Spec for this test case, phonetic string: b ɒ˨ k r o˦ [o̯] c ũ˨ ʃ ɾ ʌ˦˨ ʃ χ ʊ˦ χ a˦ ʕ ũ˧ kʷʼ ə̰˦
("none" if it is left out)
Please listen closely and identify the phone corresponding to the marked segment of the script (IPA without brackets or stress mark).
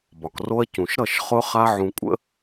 ɐ̯